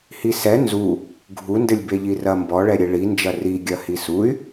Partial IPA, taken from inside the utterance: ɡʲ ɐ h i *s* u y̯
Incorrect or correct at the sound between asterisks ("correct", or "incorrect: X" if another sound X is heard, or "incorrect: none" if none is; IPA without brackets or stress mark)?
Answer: correct